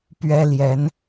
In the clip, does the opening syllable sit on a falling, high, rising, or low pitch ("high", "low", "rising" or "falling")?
high